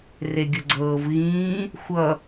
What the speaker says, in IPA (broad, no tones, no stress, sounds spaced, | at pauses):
r e ɡʲ ə ɡ͡ǀ ɤː v ɣ ĩː | xʷ ʌ